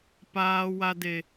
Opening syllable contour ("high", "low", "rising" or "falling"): low